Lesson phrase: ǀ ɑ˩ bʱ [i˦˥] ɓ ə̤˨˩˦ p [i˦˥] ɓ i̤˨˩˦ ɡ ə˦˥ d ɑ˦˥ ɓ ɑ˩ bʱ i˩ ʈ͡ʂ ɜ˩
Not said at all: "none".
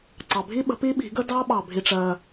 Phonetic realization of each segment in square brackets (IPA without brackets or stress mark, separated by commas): i˦˥, i˦˥